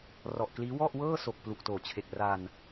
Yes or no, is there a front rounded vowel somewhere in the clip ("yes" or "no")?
no